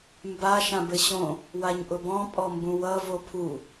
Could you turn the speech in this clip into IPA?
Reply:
mba ʃãbɘɕõ | waɲʔʊbɔ̃ pʼɔmbũwʌ vopʰu

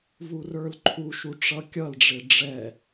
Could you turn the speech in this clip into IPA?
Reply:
vurə˞lǃʰuʃu ʈ͡ʂʌkʲʌlɖ͡ʐɪ ɖ͡ʐɛ

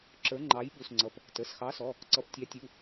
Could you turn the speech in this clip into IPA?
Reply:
ǁə˞˨˥ŋ͡ǃɑ˨˥jɓu˩˧˩sŋ͡ǀʌ˩˧˩p | tə˩˧˩sxɑ˨˥sɔ˩˧˩ | ǀʌ˨˥ptʲɑ˨˥tʲu˩˧˩

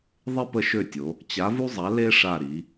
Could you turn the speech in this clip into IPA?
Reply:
ðˤe˥pə˦˨ʃø˦˨tʲo˩˧ | t͡ɕa˨˥vu˥zˤa˨˥ le˥ ʂa˦˨ɾi˩˧

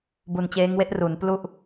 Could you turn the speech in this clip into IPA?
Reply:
bu˨˩nt͡ɕeː˦˥ŋwe˥˩ʔ ru˩˦nplu˥˩ʔ

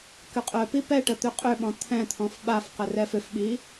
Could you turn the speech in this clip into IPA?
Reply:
kʏqʼœpi pɛʈə t̪ʏqʼøɓɔ̃ t̪ʰɛ̃t̪ʰɔ̃f ɓafqə rɛfʏfɓi

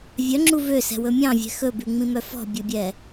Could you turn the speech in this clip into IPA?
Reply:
vʲœŋ͡ǁu vøsɛ̤wɵ mʲɑ̃vʲɛ̤ xɵbʉŋ͡mĩmœ fɔ̤bʲɵbʲɛ

